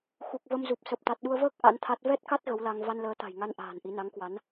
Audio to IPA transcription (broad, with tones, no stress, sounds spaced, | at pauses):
x u˨˩ k̚ v ə˧ m z u˨˩ p̚ s ə˨˩ p̚ t̪ a˨˩ t̚ ɗ u˧ ə̯ v əː˦˥ k̚ ʔ a̰˧˥ n t̪ʰ a˦˥ t̚ v ɛ˦˥ t̚ k a˦˥ t̚ ɣ ə˨˦ w l a˧ ŋ v a˧ n l əː˨˦ t̪ a̤˨˩ j ŋ a˧ n ʔ a̤ː˨˩ n ʔ i˨˦ n a˨˦ ŋ k w a˨˦ n